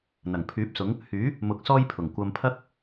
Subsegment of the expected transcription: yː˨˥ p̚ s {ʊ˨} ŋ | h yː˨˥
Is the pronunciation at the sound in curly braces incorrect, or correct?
incorrect